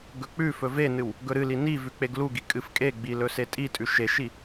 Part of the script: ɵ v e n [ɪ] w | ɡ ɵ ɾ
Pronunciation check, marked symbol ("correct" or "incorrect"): incorrect